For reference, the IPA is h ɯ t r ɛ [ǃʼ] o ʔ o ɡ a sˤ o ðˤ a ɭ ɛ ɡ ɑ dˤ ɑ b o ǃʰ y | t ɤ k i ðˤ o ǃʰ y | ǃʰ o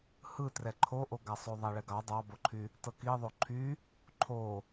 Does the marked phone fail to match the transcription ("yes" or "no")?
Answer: yes